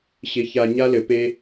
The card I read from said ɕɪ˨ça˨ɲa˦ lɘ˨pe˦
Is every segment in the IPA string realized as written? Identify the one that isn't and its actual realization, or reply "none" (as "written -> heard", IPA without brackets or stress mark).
none